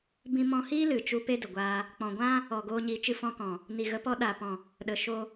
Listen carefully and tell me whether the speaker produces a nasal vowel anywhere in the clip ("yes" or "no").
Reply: yes